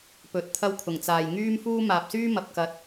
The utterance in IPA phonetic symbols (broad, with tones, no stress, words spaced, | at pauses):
pɵ˨˥t̚t̪ʰɐ˥wkʰʊ˨˩ŋ t͡saː˨jŋyː˥mfuː˥ maː˨p̚syː˥ mɐ˨˥p̚kɐ˧t̚